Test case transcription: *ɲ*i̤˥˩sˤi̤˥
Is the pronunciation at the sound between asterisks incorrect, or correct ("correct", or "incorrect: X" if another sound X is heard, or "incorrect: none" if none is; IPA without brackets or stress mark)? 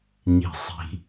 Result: correct